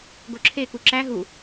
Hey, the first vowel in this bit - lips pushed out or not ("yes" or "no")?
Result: yes